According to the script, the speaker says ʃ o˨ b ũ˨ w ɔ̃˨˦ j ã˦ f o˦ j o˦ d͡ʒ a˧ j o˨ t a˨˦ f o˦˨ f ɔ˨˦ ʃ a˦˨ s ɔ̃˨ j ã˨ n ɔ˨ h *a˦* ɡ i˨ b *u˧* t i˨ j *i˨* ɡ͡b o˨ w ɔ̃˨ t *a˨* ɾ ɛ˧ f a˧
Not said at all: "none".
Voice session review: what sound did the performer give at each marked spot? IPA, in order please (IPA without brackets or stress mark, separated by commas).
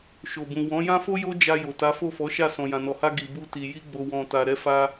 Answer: a˧, u˧, i˧, a˨